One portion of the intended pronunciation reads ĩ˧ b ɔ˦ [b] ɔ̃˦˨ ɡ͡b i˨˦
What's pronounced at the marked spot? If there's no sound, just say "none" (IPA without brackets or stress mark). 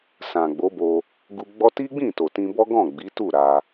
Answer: ɡ